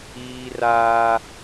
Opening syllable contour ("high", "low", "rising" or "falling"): high